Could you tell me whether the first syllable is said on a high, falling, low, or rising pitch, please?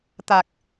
low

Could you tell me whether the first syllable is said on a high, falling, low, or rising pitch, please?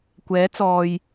rising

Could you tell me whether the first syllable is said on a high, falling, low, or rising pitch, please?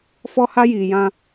high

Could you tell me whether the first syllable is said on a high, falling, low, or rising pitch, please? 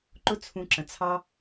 high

